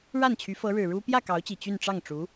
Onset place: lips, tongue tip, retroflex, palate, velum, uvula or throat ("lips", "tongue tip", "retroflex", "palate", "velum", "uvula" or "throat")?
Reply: retroflex